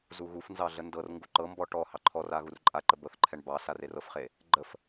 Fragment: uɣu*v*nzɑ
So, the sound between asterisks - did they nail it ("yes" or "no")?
no